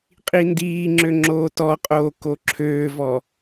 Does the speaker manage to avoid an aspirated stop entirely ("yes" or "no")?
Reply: no